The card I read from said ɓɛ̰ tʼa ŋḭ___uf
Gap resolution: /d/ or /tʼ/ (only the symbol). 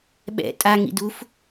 d